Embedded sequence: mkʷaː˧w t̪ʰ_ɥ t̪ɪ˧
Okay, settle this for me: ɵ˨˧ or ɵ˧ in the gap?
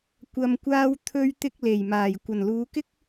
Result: ɵ˧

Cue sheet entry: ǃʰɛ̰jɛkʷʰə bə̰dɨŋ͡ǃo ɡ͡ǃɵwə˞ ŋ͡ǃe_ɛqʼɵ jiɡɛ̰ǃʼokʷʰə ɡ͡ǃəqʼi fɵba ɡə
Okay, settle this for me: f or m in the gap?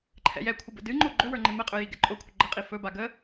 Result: m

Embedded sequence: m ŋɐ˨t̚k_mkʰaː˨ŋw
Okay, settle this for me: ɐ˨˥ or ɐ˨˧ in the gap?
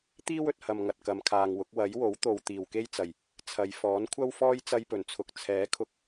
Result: ɐ˨˧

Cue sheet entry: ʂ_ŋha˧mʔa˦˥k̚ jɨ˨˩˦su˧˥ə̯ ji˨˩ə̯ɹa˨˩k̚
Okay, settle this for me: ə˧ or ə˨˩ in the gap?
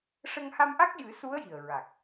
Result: ə˧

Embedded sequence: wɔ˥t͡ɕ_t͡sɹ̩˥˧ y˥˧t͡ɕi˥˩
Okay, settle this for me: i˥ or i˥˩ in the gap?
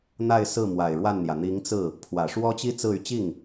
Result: i˥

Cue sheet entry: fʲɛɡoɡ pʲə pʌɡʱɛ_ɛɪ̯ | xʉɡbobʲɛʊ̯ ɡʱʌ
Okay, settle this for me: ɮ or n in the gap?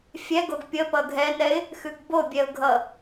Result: n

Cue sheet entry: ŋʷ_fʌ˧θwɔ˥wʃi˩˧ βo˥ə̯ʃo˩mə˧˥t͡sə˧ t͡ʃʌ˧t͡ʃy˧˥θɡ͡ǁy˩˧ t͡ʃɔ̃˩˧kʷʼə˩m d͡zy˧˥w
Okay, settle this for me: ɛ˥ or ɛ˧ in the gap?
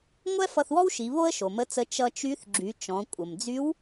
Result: ɛ˥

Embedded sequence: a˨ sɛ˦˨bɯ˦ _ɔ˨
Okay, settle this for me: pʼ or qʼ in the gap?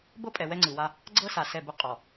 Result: qʼ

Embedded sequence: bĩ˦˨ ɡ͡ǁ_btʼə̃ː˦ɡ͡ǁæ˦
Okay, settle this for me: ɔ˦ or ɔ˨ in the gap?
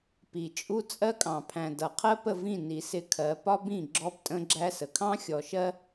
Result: ɔ˦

